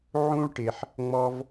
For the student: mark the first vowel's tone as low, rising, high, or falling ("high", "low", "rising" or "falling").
high